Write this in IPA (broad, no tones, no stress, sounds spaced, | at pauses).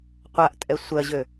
qʷ a ʔ tʼ ɛ sʷ ɜ ʑ ø